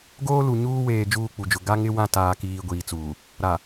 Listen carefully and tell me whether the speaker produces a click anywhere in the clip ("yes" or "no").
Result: no